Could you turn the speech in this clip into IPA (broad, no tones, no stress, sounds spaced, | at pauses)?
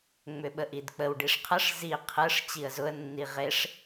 ŋ͡m ʏ ɓ ə ʔ i d k͡p ə w ɖ i ʂ qʰ ə ʂ z i qʰ ɯ ʂ t͡ɕ i ə̯ z ʊ ə̯ nː i ʁ e ʂ